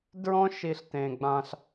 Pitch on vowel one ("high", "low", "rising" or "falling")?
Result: high